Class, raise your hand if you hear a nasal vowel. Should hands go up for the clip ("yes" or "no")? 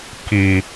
no